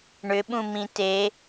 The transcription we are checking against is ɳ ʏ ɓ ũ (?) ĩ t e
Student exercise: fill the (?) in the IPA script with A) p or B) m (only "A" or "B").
B